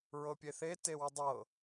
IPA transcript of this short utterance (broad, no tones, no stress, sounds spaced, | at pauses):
ɹ ɤ pʲ e θ e t e w ə dˤ ɤ